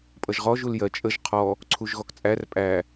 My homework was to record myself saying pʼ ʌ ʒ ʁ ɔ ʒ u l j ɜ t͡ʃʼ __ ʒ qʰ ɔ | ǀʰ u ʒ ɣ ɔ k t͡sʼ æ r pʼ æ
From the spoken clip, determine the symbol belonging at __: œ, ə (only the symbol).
ə